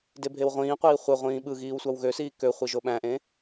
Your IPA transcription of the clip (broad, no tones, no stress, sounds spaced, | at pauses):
d e bʱ e w ʁʷ ĩː qʷ iː χʷ e ʁʷ ĩː ɓ ɯ ɣ iː w sʷ ɑ w ɣ ø s iː k ø χʷ i ʒ o ɓ æ̃ ʔ ẽ